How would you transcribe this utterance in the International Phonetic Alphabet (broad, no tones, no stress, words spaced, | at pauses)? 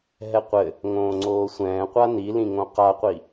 ɦɛqʷɘ | ŋõːŋ͡ǀoːsʷɛ̃ː qʷanilĩŋõ qaqʷi